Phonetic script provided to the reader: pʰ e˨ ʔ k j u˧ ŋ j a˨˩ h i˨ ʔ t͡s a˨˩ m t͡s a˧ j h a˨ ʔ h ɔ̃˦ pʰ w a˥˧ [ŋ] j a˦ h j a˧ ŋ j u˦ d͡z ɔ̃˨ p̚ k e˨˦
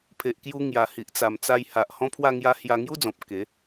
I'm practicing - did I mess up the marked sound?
no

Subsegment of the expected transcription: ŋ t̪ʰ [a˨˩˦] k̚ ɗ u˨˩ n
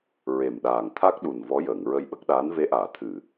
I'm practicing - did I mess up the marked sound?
yes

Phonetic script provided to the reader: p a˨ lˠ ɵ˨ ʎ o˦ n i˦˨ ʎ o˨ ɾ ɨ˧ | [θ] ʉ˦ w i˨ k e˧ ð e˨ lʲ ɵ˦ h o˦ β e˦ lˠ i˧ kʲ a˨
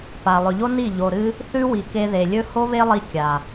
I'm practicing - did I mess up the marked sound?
no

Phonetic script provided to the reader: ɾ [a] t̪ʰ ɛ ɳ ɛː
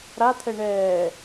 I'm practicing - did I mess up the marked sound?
no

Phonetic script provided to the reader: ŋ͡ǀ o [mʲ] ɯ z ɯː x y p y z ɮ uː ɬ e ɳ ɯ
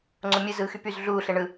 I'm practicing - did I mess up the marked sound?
no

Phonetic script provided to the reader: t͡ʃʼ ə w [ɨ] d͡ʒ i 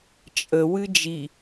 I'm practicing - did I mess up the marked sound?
no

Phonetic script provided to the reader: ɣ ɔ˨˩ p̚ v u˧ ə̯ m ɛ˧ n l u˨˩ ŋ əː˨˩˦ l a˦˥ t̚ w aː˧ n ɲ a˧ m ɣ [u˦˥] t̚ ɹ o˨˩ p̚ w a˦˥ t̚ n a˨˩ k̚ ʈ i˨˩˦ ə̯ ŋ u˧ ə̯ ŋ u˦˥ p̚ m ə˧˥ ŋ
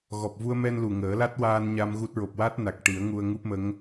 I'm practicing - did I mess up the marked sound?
no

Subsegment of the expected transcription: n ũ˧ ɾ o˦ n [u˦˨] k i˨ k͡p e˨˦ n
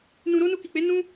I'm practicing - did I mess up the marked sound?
yes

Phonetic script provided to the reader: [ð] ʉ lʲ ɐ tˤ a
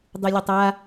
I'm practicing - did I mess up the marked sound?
yes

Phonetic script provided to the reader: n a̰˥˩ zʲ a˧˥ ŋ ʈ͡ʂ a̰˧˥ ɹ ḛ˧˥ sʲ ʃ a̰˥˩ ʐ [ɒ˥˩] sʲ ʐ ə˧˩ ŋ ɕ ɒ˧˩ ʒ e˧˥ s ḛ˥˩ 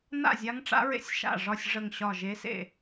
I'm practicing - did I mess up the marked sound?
no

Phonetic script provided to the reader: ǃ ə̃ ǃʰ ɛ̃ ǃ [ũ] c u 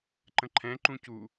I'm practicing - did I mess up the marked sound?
no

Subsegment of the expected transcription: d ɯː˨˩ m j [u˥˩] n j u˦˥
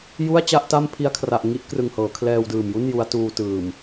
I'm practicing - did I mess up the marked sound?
no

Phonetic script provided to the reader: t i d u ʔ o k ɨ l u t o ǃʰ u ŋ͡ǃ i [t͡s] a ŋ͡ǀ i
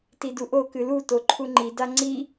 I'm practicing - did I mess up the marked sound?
yes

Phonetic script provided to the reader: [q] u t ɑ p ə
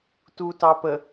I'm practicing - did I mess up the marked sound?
yes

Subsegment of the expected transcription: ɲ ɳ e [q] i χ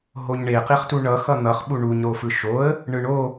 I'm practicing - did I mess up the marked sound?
no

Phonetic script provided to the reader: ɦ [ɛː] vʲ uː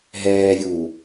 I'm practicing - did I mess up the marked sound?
no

